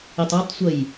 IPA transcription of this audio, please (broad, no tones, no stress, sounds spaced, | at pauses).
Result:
i tˤ a tˤ sʷ ə j